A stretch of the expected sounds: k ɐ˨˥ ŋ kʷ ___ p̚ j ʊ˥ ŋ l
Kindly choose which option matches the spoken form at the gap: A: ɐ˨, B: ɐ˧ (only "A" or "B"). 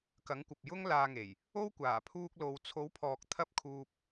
A